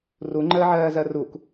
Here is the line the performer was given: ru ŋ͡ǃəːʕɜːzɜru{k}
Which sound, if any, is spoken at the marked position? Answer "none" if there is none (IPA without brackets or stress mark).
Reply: k